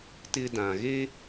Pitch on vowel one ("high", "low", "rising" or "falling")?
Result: high